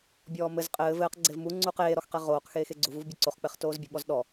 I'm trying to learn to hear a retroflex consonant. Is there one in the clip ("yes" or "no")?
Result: no